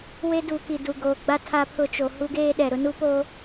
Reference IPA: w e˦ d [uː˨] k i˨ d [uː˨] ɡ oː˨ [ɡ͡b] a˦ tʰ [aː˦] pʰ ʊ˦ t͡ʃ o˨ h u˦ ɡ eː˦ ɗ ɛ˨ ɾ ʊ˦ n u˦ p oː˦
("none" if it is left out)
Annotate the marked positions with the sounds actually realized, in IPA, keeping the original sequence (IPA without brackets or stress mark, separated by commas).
uː˨, u˨, ɡ͡b, a˦